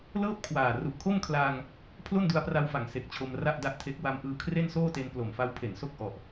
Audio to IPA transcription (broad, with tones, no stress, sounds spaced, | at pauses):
l ɤː˥˩ p̚ kʰ w aː˨˩ r u˨˩ ʔ kʰ o˥˩ m kʰ l aː˧ ŋ | pʰ l o˥˩ n d u˧ a̯ p r a˧ w f a˩˦ ŋ s e˨˩ k̚ t͡ɕʰ o˧ m r a˥˩ ʔ d a˥˩ ʔ tʰ e˦˥ k̚ w a˧ m ʔ ɯː˧ kʰ r e˥˩ n s oː˥˩ t e˧ n p l o˨˩ m f a˦˥ w pʰ e˩˦ n s o˥˩ k̚ ʔ ɔ˨˩ ʔ